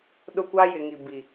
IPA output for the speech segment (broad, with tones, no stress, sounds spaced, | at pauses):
ɗ ʊ˦ kʷ a˦ j ɪ˨ ŋ i˨ b i˨